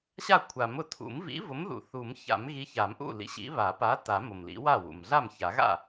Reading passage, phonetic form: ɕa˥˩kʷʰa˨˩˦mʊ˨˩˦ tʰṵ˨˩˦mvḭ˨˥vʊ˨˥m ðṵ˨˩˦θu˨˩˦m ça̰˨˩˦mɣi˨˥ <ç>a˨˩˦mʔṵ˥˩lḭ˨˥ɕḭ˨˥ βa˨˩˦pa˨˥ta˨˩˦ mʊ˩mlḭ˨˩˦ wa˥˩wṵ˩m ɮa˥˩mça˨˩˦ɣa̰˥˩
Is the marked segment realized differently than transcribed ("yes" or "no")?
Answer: no